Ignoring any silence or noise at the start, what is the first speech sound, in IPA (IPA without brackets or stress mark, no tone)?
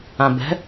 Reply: ã